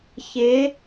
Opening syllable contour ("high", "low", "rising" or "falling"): rising